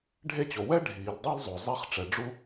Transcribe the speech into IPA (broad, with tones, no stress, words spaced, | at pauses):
ɖʱe˥t͡ɕo˩ wɛ˥ ɖʱiː˩ldˤe˥lzˤo˩ zˤi˥χ ʈ͡ʂɛ˩ ɖ͡ʐu˥